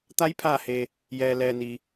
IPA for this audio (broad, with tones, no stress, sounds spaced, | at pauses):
t̪ a˧˥ j pʰ aː˧˩ h eː˩ | j ɛː˩ l ɛː˩ n iː˩